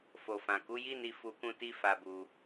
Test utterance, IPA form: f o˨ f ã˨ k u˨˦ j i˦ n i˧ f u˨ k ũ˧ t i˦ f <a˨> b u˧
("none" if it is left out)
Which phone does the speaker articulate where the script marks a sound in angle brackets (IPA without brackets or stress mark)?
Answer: a˧